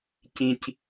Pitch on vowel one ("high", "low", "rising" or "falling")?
low